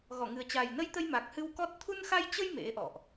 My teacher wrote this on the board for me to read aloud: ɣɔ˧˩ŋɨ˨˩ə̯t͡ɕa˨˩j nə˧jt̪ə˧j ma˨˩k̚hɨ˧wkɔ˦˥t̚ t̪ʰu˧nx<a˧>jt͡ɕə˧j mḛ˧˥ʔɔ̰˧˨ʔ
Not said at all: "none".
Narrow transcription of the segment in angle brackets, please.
a˧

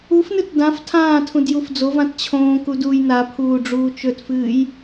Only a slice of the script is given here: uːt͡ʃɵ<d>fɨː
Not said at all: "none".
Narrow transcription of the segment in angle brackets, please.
t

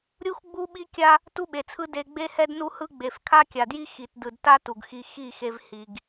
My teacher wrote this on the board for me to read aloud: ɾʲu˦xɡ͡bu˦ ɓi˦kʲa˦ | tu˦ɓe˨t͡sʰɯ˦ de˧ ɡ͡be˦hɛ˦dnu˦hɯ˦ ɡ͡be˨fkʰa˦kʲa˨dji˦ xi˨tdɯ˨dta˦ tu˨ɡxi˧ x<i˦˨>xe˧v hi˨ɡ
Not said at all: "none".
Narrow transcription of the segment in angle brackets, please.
i˦˨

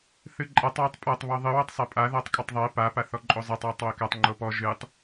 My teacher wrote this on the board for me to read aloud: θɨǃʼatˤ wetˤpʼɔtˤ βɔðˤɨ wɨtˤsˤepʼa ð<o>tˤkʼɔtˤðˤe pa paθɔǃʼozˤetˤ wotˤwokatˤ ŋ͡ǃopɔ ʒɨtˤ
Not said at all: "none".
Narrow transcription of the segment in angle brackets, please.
ɔ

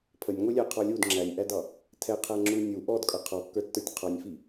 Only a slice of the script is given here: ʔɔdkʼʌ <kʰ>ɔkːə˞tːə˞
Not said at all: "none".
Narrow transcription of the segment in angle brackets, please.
qʰ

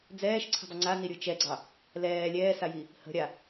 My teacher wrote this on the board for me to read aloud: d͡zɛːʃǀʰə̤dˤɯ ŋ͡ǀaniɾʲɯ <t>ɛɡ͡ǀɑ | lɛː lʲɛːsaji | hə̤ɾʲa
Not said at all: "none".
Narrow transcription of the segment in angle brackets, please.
t͡ʃ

